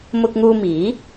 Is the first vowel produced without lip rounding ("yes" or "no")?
no